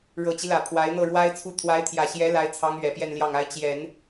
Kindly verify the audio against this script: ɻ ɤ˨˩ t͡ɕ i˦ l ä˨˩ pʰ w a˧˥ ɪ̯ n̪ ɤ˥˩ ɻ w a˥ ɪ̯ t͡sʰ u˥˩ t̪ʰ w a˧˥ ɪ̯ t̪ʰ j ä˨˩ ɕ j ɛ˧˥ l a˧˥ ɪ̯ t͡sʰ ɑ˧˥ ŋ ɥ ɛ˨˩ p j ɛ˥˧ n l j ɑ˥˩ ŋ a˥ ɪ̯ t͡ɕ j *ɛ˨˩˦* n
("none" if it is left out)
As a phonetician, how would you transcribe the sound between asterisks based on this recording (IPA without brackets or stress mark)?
ɛ˨˩˦